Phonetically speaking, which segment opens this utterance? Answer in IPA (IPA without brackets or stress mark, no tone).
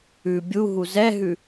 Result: ʉ